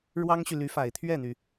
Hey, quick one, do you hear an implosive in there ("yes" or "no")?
no